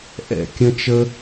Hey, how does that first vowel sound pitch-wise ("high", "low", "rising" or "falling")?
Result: falling